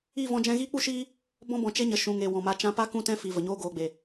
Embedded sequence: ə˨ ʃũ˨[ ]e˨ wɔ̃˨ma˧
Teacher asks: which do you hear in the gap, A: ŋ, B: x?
A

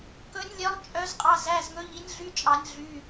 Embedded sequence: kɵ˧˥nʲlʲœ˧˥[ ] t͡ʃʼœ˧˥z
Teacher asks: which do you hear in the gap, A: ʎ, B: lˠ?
B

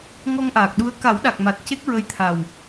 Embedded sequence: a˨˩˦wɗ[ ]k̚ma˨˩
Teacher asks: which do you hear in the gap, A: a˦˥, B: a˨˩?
B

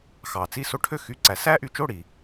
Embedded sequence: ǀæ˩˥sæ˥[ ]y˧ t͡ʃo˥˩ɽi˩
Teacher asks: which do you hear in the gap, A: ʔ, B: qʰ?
A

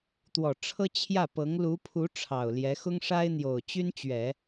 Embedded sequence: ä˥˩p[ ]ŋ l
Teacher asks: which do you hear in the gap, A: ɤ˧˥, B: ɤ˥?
A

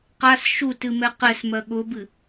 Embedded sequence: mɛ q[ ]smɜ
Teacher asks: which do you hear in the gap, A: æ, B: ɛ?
B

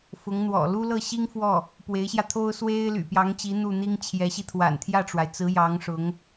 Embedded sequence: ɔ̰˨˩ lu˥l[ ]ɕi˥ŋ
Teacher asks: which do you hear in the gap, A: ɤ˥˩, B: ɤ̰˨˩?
A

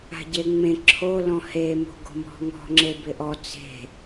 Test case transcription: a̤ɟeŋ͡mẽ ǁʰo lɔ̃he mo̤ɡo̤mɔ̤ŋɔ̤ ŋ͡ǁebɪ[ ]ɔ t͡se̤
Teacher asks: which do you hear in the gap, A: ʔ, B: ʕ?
A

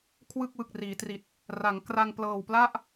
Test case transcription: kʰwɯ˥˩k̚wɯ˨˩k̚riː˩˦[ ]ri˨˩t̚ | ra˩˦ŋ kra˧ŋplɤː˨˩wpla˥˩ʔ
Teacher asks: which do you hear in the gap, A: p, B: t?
B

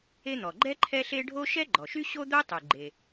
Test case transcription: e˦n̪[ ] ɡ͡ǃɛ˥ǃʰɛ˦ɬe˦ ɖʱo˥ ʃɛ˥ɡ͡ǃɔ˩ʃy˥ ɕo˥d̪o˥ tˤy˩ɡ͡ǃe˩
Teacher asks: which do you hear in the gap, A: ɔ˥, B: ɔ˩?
B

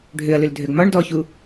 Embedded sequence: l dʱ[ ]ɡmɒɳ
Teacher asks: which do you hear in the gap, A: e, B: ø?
B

